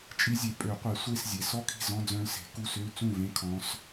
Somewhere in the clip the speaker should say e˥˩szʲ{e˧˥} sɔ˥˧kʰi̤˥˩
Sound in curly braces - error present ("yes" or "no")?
yes